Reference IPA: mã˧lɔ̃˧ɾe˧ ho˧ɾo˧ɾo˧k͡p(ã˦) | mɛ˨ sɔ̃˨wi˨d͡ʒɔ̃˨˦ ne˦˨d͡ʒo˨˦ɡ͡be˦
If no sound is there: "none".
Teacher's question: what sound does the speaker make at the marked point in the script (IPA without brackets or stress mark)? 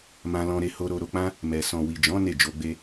ã˦